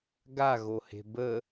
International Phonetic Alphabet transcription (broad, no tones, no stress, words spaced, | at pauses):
ɡaɣohe̤ bə